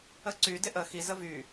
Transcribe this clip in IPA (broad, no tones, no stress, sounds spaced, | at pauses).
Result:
ə ǀ y d ɪ ʔ ə x i z ə v y